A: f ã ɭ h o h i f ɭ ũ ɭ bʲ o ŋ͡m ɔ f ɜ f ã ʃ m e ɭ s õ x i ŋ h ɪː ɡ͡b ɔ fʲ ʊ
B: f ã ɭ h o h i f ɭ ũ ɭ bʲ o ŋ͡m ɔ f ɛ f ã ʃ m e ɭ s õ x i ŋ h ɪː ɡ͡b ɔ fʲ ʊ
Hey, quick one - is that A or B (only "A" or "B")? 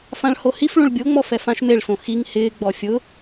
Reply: B